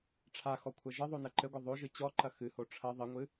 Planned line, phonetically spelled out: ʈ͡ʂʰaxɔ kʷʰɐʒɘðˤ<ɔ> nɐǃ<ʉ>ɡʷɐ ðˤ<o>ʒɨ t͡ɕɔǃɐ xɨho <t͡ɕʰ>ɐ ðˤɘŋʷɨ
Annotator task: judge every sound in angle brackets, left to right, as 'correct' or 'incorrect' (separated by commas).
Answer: incorrect, incorrect, correct, incorrect